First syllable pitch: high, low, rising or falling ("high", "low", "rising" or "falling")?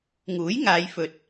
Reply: rising